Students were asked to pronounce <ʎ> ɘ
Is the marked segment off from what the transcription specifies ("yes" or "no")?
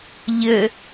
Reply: no